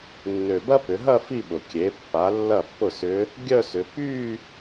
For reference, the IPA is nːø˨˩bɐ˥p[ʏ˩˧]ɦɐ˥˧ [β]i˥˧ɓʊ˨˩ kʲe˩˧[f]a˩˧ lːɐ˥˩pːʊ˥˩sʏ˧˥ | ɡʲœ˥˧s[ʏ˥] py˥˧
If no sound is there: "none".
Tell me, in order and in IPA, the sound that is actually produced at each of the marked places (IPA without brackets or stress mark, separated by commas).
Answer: ʏ˩˧, f, pː, ʏ˩˧